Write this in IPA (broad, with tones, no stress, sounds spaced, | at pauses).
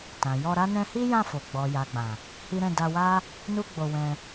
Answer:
t ã˨ j ɔ˧ ɾ a˦ n ɛ̃˧ h i˦ j ã˦˨ f o˨ ɡ͡b ɔ˨ j a˨ ɡ͡b ã˨ | h i˦ ɾ ɛ̃˦˨ d a˧ w a˦ | n u˦ ɡ͡b o˧ w ɛ̃˧